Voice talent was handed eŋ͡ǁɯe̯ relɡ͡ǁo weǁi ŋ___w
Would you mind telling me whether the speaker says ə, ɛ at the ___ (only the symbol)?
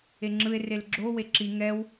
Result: ɛ